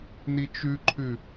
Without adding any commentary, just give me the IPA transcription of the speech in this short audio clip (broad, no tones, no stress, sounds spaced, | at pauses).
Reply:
n i t͡ʃ ʉ ǃʰ ʉ